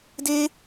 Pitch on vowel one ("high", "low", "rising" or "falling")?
high